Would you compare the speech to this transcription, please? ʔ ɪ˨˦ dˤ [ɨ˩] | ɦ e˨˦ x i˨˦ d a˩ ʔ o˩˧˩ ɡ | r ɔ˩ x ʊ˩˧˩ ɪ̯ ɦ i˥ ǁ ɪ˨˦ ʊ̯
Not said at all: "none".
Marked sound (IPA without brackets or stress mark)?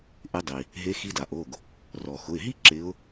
i˩